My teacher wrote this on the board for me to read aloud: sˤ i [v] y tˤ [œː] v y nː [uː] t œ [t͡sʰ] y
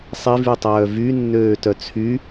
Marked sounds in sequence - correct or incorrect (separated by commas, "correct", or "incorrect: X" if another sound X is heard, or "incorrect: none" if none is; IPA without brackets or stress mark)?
correct, correct, incorrect: øː, correct